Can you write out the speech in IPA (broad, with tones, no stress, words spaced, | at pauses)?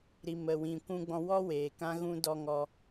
ɾi˨ mə˨wĩ˨ kʷũ˧ɡ͡bɔ̃˧wɔ˦weː˨ kã˧ɣũ˧ dɔ˦ŋɔ˦